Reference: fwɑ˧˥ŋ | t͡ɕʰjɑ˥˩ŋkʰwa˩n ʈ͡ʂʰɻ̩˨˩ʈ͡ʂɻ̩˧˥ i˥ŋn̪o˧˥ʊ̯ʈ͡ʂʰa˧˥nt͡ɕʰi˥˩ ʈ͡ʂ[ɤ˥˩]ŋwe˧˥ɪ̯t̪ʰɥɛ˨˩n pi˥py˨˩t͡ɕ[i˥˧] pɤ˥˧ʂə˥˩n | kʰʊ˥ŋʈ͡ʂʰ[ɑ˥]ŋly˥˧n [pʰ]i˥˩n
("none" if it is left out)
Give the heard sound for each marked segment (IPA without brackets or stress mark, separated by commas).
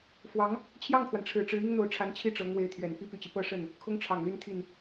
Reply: ɤ˧˥, i˦, ɑ˨˩, t̪ʰ